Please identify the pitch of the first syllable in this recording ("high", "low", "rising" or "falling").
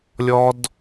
high